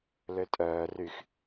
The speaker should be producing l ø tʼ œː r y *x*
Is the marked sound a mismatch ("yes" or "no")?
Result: no